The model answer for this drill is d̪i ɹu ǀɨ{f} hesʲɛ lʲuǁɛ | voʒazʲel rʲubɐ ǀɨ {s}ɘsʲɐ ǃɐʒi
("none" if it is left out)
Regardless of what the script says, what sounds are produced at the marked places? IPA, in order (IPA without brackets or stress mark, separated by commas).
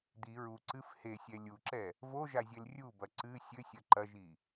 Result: f, sʲ